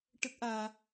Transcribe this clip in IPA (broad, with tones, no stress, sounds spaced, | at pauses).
ʈ ə˦˥ k̚ ʔ aː˧